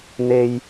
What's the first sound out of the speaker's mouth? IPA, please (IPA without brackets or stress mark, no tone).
n̪